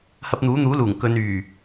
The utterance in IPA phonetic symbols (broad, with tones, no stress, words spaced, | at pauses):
hɐ˧p̚n̪uː˨˥n̪uː˨˥luː˨˩ŋ kɵ˨˧nyː˨˩